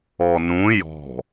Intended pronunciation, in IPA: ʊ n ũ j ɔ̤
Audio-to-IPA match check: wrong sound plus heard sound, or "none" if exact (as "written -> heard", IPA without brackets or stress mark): ʊ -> ɔ